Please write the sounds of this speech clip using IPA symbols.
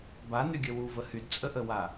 b a n y ɡʲ ə w u v ə h y d t͡sʼ ə ʔ ə w a

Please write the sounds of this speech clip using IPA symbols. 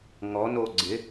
ŋ ɔ n o ɡ͡ǀ ɪ

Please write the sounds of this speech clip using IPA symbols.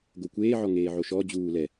ɡ o kʷ eː ʕ ɔ ŋ eː ʕ o ʃ ɔ d͡ʑ uː l ɛ

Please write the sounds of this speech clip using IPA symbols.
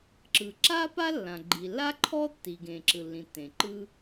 ǁ ɯ˩ ǁ a˥ p a˥ lː ã˩ ɡ͡ǃ i˩ lː a˥ ǃʰ ɔ˥ tː i˩ ɡ ẽ˩ ǁ ɯ˩ lː ĩ˩ tː ẽ˩ ǃ ɯ˥

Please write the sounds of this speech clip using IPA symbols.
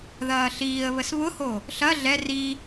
ð ɐː ɬ iː ə̯ β ə s β ʊ h o | ɬ ɐ ɮ ɛ r i

